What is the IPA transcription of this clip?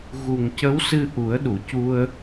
ɣu˨˩ŋcə˧˥wsɨ˧ ʔu˨˩˦ə̯ɗu˨˩˨cu˧ə̯

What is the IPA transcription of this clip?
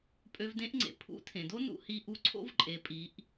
pʼø˧vdẽ˧˥ʔŋ͡ǀḛ˩˧ pʰṵ˧˥tʰẽ˩do˥ nṵ˥hi˧˥ʔu˧˥ ǀʰo̰˥vǃʼe˩˧pʼi˩˧ʔ

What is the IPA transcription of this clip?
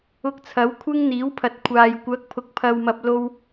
ʊ˧k̚t͡sʰɐ˨˥wkʷʰɪ˥ŋ n̪iː˨˥wpʰɐ˨t̚kʷʰaː˨j kʷɐ˨˥k̚pʰʊ˨k̚pʰɐ˨wmɐ˨p̚ lo˧w

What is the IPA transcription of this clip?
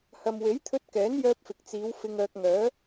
hɐ˨mwe˨˥jt̪ʰɵ˧t̚kɛː˨˥n jœː˧p̚fɪ˨k̚t͡siː˨˧w fɪ˧ŋœː˧k̚ ŋœː˨˧

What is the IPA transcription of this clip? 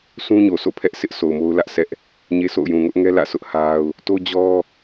sũ˦ɲo˨sʰo̰˦˨ pʰɛ˦ʔsʰɪ˦ʔsʰo˨ʊ̯ mo˦ʊ̯lä˦ʔsʰɛ˦ʔ | ɲe˦so̰˦˨ʊ̯ jũ˨ŋʊ˦ʔŋɛ˦ lä̰˦˨sʰʊ˦ʔha˦ʊ̯ | to˦d͡ʑɔ˦

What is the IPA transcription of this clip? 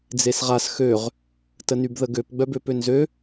d͡zesʁas xøʁ | tənybðəɡøp ɡ͡bœbøpønzø

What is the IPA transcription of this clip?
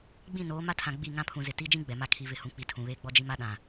ɡ͡bĩ˦˨noː˨˦ ma˦tʰã˨ ɡ͡bi˦˨ ŋã˦pʰũ˨zɪ˨ ti˦ d͡ʒĩ˦ ɡ͡bɛ˨ma˦ kʰi˨ vɪ˨hũ˨k͡pi˨ tʰũ˨βeː˦ɡ͡bɔ˦d͡ʒi˦ ma˦ɗã˨

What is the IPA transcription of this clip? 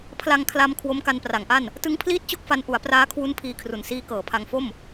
pʰla˧ŋkʰla˧m kʰwo˦˥mka˧npra˩˦ŋʔa˥˩n | tɯ˦˥ŋpʰliː˥˩t̚t͡ɕo˥˩k̚fa˧n ʔu˩˦a̯praː˦˥kʰwu˦˥n pʰiː˧kʰru˨˩nsiː˦˥ kɤː˨˩pʰa˧ŋfo˥˩m

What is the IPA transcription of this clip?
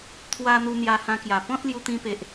t̪ʰwa˧ n̪u˧n̪ja˧hã˧kja˨˩ pɔ̃˦t̚lju˧t̪ĩ˧pe˨ʔ

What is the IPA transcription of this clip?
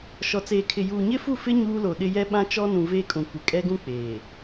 ʃɔ˨t͡seː˨kʰɪ˨ juː˨ɲɪ˦fu˦˨fɪ˦ ɲuː˦lo˨ɗɪ˦ jɛ˦ɓã˦ t͡ʃɔ˦ nũ˨ veː˦kʼũ˨ kʷɪ˨kʼɛ˦ɡũ˦ k͡peː˨

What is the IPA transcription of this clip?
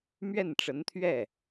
mɥɛ˥˩nʈ͡ʂə˧˥nt̪ʰɥɛ˥˩

